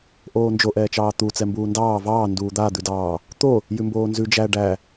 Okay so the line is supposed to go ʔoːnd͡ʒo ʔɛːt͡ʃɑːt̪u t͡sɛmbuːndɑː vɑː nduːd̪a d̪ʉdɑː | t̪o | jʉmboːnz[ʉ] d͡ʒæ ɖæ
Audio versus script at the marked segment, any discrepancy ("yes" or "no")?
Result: no